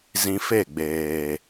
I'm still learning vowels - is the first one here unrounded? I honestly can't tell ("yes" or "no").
yes